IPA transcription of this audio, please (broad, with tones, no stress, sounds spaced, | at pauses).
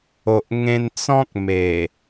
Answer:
o˨ ʔ ŋ ẽ˧ n t͡s ɔ̃˦ k̚ m e˨˩